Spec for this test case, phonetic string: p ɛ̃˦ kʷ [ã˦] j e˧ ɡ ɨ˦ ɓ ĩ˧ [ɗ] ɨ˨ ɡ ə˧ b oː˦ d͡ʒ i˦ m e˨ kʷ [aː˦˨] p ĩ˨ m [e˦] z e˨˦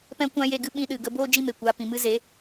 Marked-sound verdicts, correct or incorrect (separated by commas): correct, correct, incorrect, incorrect